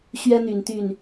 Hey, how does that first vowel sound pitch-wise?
high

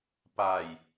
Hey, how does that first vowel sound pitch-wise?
low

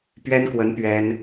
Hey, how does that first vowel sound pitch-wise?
high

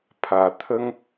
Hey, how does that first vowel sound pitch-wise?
low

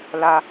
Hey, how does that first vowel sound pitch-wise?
high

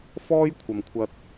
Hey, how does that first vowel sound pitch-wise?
high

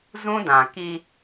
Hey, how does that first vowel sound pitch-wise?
high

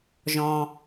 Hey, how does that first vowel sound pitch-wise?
low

